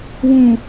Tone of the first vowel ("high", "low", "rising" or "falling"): low